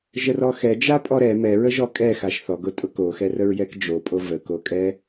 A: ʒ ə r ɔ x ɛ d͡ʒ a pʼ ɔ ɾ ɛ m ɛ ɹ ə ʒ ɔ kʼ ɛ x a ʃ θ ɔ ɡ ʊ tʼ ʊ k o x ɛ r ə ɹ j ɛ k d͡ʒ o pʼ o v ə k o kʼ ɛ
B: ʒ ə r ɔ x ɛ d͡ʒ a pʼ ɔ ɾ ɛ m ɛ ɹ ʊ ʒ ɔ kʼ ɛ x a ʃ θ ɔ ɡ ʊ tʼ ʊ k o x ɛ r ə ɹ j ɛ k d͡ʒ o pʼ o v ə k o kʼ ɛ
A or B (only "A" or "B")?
A